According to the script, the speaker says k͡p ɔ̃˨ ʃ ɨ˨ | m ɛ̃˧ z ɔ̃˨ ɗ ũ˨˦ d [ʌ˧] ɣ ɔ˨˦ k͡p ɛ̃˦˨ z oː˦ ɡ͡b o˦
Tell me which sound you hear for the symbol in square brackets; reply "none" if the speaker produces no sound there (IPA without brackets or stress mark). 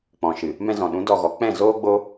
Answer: ɔ˧